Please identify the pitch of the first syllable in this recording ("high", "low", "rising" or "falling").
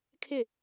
falling